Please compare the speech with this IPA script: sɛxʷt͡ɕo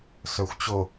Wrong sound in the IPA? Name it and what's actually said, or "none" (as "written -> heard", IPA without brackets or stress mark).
ɛ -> œ